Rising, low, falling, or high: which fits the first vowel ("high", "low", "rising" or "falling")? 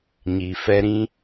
low